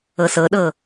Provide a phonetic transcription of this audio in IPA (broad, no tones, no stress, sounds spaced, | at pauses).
ɤ s ɤ ɗ ɤ